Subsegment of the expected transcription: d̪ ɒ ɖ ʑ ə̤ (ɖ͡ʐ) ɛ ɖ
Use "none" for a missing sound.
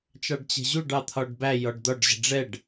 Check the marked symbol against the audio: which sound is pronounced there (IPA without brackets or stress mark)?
ɖ͡ʐ